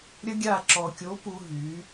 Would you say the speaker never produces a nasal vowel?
yes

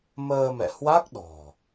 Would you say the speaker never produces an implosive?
no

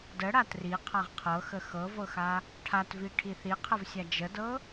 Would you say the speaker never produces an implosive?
yes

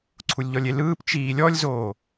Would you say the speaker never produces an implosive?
yes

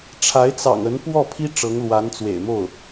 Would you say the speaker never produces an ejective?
yes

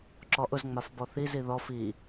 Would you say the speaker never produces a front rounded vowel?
yes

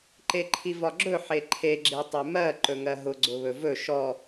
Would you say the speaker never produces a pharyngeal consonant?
no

